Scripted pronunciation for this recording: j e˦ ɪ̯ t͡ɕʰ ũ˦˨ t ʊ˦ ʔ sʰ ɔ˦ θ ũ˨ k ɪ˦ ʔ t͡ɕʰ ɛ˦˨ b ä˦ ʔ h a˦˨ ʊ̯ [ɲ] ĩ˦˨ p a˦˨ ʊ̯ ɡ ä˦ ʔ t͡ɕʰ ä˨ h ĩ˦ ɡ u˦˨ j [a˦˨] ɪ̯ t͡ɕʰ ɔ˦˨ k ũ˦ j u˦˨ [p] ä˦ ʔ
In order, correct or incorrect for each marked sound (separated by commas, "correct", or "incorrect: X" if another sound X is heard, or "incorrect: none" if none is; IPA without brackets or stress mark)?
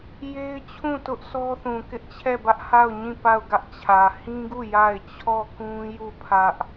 correct, correct, incorrect: pʰ